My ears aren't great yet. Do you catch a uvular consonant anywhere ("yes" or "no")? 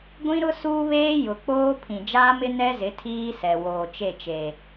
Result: no